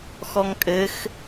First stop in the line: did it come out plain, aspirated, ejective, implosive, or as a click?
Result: ejective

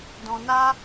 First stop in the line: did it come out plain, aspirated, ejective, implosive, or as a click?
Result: plain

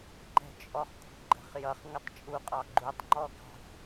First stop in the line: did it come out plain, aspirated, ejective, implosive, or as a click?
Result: click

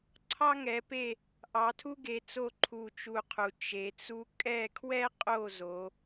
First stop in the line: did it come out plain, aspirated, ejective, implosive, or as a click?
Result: click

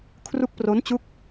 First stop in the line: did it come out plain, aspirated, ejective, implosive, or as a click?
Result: aspirated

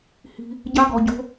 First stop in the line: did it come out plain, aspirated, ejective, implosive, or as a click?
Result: plain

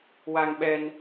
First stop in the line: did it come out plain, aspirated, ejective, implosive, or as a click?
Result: implosive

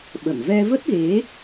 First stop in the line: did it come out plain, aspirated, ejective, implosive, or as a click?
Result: implosive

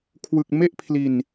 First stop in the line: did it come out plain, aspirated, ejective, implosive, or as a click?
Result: aspirated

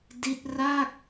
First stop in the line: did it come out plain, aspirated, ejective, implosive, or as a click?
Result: plain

